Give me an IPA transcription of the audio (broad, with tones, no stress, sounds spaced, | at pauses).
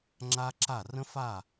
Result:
ŋ͡ǁ a˦ ǁ a˦˨ r ə̃˦ f a˦˨